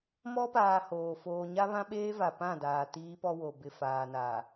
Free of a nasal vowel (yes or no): no